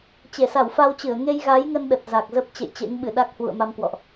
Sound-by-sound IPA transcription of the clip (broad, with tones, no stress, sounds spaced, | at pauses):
t͡ɕ e˧˩ s a˧˩ w f a˧ w t͡ɕ ɨ˧˩ ə̯ ŋ e˧ j ɣ a˨˦ j ŋ ə˧ n ɗ ə˨˩ t̚ z a˨˩ k̚ z ə˦˥ p̚ t͡ɕ ḛ˧˨ j t͡ɕ ḛ˧˥ ŋ ɓ ɨ˧˩ ɗ a˦˥ k̚ h w ṵ˧˨ ə̯ m a˧ m k w ɔ̰˧˨ ʔ